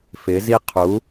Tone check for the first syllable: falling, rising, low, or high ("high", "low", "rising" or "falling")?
rising